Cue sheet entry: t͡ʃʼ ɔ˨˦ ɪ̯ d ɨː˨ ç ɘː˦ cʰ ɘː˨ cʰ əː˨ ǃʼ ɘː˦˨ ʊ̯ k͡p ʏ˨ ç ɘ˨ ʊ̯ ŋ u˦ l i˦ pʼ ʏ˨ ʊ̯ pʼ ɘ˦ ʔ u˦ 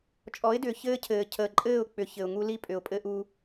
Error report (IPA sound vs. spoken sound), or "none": ɨː˨ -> ʏː˨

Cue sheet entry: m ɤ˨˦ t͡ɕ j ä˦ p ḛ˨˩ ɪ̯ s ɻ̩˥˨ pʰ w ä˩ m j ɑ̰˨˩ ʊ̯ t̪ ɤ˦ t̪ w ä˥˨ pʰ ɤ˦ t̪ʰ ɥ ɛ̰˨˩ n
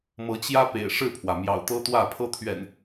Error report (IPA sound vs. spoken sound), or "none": s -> ʂ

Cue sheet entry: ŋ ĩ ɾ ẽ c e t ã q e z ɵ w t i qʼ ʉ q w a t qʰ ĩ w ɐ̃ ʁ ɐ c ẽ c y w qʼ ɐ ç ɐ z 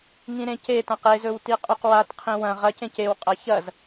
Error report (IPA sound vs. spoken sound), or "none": y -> e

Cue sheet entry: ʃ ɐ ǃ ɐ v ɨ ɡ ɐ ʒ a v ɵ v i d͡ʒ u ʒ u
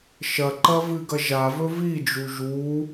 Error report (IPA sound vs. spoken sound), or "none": none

